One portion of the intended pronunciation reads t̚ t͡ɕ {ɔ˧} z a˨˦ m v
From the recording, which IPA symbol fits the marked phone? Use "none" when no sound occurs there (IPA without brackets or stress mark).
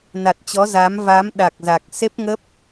ɔ˨˦